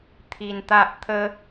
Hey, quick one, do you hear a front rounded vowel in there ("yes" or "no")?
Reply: no